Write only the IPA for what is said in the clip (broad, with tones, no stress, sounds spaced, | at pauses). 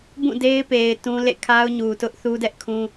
b ũ˦˨ d e˦ ɪ̯ p e˨ ɪ̯ t ũ˦ l ḛ˦˨ kʰ a˦ ʊ̯ ɲ u˨ t ʊ˦ ʔ θ u˦ d ɛ˦ ʔ kʰ ũ˦